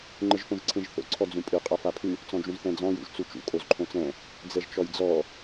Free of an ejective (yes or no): no